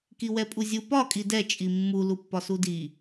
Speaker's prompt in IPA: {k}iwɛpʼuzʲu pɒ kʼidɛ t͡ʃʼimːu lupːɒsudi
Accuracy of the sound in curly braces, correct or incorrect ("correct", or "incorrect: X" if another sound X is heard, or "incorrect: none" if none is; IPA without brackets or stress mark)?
correct